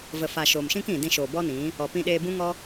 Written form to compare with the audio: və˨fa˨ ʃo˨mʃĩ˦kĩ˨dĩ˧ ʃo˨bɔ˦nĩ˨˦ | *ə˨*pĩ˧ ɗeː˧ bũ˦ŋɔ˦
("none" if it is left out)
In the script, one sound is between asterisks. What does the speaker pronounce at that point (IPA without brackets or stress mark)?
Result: ɔ˨